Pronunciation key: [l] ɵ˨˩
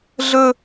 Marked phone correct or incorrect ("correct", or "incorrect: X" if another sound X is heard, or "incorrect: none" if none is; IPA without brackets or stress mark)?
incorrect: ɮ